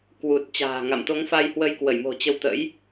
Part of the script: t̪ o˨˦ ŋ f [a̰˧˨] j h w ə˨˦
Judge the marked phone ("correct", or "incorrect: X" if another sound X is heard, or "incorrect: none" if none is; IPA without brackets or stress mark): incorrect: a˧